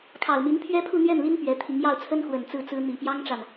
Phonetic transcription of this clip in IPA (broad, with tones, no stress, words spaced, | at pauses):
kʰɑ˨˩ʊ̯mi˧˥n pʰɥɛ˥pʰu˥˧n̪ɥɛ˥˩nli˥n pɥɛ˧˥t̪ʰi˧˥ŋ jɑ˥˩ʊ̯t͡sʰə˥nxwə˨˩n t͡sɹ̩˥˩t͡sɹ̩˥ n̪i˨˩pjɑ˥ŋʈ͡ʂa˨n